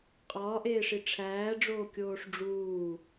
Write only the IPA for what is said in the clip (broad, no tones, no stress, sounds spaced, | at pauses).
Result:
qʼ ɒː ʔ eː ʂ i ʈ͡ʂʰ æː ɖ͡ʐ oː kʲ oː ʂ ɖ͡ʐ uː